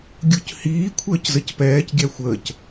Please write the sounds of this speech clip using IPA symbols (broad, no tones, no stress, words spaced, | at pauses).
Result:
ɡʲuchiː kʷʰəːczəcpɛːc ɡʲæxʷəːc